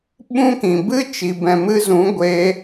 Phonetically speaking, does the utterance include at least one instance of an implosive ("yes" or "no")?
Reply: yes